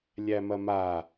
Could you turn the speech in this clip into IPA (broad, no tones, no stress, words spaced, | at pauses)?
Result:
lʲæmɐma